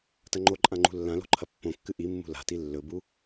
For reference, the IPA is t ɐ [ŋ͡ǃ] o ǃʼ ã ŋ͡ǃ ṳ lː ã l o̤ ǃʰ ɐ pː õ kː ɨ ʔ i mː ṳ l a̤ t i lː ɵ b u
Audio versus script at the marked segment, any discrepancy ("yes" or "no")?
no